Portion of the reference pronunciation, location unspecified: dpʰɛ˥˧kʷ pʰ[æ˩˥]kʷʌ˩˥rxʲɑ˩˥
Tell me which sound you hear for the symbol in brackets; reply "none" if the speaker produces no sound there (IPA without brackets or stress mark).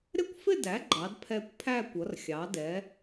æ˥˧